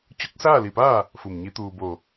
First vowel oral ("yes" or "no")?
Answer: yes